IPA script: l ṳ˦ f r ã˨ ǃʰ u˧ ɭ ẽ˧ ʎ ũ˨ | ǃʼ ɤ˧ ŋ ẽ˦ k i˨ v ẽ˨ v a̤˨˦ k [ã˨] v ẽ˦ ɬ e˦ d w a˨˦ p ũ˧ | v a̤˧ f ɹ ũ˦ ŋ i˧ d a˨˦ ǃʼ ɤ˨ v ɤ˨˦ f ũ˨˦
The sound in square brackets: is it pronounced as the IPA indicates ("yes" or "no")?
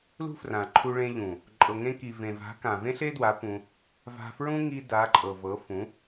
yes